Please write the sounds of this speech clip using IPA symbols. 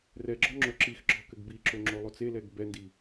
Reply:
rɛɡ͡ǁɔ ŋ͡ǁoǁixɡ͡ǁɔ kɘɡbiǁo ŋ͡ǁolˠot͡selɛɡ bɛndi

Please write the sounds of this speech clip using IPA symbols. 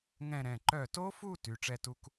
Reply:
ŋɛ̃˥˧ɾɛ̃˩˧˩ ǃœ˧˩to˦˥fu˥˧ ty˩˧˩ʈ͡ʂɛ˥˧tu˦˥k

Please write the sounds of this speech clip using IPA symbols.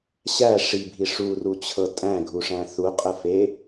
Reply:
ɕæ ʂibʱi ʂurut͡ɕʰɤ tʼæ̃ɡʱuʂæ̃ θuqʼəfe

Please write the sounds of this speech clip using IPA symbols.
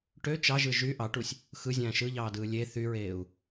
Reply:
ʈø t͡ʃɑʒɯ ʒy ʔɑʈusʲ | xɯzʲæ̃ː ʃɯʎɑːdɯː lʲe θyɹeːu̯

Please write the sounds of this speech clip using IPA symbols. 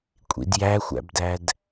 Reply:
kʷʼḭdjæxʷæ̰bdæd

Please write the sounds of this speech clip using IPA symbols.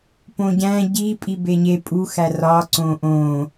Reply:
põɟæ̃ ɟipʼi beɲe pʼuxæ rɒ ǀõʔõ

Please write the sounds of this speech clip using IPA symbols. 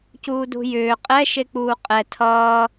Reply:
cuːdṳjʏː qʼɛ ʃek͡puːqʼɛ tʰʌː

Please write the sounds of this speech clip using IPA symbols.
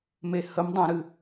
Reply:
mehəm dˤãɾɨ

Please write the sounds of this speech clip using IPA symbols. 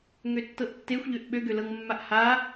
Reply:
ŋøtːɤʔtːexʷ ʎøʔɓø ɡølɤŋmːaʔha

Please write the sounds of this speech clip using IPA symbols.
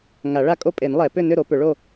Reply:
ŋa˨˩˦ɭa˥˨kʼo˥˨ pʼe˨˩˦nlˠɛ˨˩˦pʏ˥˨ nʏ˥˨ɾo˨˩˦pʏ˨˩˦ɭo˥˨

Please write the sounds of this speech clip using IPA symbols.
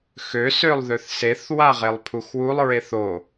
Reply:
xøsølˠ ðøθseθ waʁelˠpʰuxwulˠ ɹeθo

